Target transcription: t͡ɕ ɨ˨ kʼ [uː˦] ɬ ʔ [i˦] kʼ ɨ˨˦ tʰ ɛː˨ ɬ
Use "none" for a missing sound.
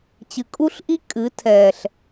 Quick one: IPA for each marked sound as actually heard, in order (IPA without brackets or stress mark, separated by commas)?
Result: u˦, i˦